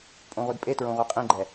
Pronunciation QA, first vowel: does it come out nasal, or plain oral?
nasal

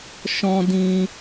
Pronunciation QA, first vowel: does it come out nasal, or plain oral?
nasal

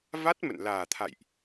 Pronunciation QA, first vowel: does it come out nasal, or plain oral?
oral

